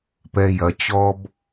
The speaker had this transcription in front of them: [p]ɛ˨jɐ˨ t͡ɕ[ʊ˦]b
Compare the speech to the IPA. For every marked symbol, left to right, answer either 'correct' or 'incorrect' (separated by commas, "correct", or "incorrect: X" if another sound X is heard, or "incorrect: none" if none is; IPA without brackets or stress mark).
correct, incorrect: ɔ˦